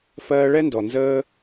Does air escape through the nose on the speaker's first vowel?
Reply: no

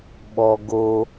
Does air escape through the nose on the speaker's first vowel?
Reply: no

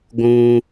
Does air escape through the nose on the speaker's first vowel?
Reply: yes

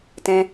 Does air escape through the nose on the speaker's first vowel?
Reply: yes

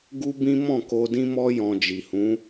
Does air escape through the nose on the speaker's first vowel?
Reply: no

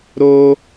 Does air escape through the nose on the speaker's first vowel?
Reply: no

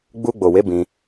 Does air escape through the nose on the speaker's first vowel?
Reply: no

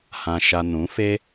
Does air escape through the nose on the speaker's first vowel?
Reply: yes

